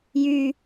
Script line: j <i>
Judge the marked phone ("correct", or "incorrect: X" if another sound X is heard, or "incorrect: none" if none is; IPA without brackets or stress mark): incorrect: y